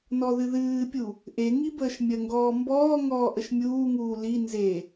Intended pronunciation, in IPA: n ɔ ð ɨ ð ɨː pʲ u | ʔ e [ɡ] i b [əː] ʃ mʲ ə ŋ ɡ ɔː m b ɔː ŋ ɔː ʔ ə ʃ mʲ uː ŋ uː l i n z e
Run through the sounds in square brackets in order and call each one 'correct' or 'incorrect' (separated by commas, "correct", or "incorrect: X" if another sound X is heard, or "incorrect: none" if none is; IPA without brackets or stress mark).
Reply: incorrect: ŋ, correct